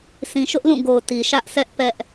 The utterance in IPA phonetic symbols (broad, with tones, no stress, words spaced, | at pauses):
sĩ˨ʃʊ˦ʔlũ˦˨ɡo˨ʊ̯ ti˨ʃä˦ʔsɛ˦ʔ pɛ˦ʔ